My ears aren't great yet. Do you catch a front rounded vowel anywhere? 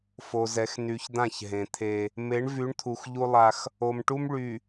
yes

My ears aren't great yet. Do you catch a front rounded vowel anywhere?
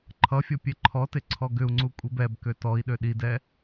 yes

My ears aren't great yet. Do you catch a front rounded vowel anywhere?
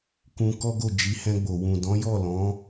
no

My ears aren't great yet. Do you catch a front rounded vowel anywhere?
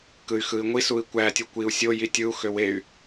yes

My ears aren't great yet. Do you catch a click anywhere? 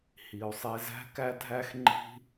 yes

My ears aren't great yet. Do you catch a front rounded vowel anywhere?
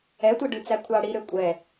yes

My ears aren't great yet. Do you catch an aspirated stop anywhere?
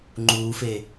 no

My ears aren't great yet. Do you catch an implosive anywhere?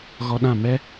yes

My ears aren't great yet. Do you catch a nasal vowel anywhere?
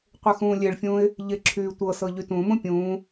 yes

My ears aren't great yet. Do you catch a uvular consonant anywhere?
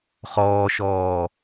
yes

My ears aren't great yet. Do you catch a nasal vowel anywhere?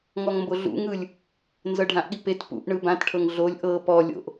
yes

